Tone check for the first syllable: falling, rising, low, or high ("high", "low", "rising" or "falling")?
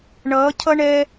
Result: rising